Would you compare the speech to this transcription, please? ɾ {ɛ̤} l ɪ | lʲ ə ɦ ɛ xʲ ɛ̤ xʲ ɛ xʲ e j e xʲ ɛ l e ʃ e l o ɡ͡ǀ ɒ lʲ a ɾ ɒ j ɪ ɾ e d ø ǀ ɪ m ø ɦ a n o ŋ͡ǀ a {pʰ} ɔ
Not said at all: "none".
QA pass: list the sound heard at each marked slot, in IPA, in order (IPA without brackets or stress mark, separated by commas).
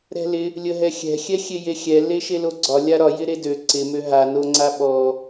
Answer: ɛ̤, ɓ